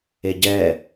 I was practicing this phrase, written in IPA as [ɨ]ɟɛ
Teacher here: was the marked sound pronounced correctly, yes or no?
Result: no